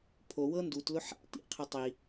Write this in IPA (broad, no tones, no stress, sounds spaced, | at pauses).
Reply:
pʰ o w ɤ n d u t l ʊ ħ a̰ t ḭ qʰ ɪ tˤ i